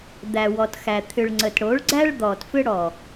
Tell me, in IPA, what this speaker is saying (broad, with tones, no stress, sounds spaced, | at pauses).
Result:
d̪ æ˨ w ɔ˨ t x æ˨ t̪ʰ ʏ˨ ɭ ŋ͡ǀ ə˨ t ɽ o˨˦ ɭ ɡ͡ǀ æ˦ ɭ d̪ ɔ˨ t f ʏ˦ ɽ ɔ˨